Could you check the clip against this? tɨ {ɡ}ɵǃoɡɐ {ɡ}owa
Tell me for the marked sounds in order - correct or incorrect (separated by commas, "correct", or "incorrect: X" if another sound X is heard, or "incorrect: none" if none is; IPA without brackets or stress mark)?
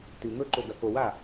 incorrect: ŋ, incorrect: k